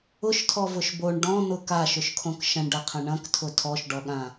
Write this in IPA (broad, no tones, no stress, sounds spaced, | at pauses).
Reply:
ʊ ʃ tʰ ɔ v ʊ ʃ b o ɳ ɖ ɔ̃ n̪ ʊ k a ʃ ʊ ʃ kʰ õ k ʃ ɐ̃ ɳ ɖ ɐ qʰ ɐ̃ ɳ ɐ̃ k tʰ ʊ tʰ ɔ ʃ ɖ ɔ ɠ ã